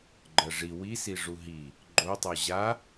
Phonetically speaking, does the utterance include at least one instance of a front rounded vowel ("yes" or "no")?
no